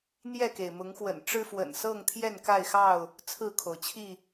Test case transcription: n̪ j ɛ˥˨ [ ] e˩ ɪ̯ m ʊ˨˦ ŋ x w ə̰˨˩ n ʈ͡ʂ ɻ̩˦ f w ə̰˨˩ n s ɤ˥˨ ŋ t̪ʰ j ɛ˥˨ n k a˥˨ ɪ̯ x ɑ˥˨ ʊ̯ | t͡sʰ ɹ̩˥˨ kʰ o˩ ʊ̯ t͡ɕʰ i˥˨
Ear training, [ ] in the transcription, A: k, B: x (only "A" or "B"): A